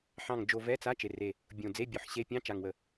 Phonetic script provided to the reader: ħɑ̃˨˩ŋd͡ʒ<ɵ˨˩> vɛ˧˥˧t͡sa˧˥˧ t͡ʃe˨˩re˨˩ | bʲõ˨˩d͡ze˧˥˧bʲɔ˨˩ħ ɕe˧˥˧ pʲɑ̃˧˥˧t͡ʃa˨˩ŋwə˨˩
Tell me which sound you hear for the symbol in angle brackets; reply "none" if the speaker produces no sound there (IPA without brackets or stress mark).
o˨˩